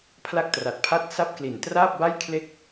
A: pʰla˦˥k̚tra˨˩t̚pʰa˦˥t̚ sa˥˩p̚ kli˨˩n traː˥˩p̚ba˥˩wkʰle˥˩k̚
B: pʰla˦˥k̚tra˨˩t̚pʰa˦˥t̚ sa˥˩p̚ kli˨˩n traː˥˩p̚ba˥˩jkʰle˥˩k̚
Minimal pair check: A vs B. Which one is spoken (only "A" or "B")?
B